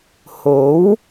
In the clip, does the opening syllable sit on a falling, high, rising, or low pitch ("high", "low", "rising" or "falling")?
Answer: rising